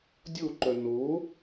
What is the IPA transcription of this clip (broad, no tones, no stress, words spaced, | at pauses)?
dʲoǃœ no